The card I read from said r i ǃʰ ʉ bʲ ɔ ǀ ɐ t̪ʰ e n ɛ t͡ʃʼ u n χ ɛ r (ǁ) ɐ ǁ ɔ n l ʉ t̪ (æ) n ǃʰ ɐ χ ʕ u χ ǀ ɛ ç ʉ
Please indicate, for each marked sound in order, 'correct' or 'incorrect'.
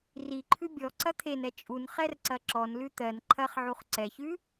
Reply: incorrect: ǀ, incorrect: ɜ

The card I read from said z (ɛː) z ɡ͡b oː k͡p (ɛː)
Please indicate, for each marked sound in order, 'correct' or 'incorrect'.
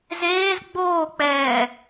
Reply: incorrect: eː, correct

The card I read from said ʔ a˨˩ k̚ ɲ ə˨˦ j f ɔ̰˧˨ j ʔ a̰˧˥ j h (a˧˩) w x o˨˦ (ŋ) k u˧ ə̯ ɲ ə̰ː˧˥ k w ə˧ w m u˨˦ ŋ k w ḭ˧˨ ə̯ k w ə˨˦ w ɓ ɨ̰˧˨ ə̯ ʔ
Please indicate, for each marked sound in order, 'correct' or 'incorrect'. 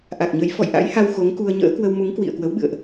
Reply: incorrect: a˧, correct

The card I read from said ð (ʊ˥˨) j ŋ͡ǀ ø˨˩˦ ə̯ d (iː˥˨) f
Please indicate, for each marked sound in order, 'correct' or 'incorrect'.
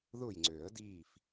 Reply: correct, correct

